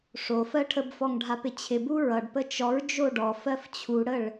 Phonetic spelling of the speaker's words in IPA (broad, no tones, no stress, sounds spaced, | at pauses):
ʂ o f ɜ ʈʰ ə b f ɔ ŋ ɖʱ a p ɪ t͡ɕʰ ɪ b u ɹ ʌ ɖ p ə t͡ʃ ɔ ɹ d͡ʒ o ɖ ɔ f ɜ f t͡ɕʰ u ɽ ə ɭ